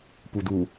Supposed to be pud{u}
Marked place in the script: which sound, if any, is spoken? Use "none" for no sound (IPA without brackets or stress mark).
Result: u